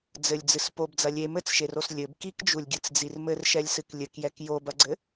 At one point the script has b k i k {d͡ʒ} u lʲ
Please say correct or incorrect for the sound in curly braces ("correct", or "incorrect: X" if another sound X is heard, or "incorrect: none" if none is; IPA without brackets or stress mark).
correct